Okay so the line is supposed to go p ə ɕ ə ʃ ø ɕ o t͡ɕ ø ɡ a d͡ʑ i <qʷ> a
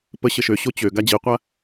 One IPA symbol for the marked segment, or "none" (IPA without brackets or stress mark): qʷ